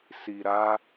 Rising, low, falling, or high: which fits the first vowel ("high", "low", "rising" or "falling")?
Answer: low